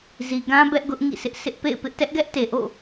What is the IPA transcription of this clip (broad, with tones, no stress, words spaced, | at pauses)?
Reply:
zi˨ɡã˦ bɛ˦ʔɡʊ˦ʔ ŋḭ˦˨sɪ˦ʔ sɪ˦ʔpḛ˦˨ɪ̯pɪ˦ʔ tɛ˦ʔɡɛ˦ʔte˨ʔo̰˦˨